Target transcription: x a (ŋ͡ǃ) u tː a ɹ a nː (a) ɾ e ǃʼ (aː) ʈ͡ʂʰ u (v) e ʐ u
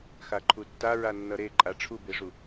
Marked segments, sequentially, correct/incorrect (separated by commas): incorrect, incorrect, incorrect, incorrect